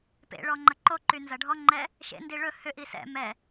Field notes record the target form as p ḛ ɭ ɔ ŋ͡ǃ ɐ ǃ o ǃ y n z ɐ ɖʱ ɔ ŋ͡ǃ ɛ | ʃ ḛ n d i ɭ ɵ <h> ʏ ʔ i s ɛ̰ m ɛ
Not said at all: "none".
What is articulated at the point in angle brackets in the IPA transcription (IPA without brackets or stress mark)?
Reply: h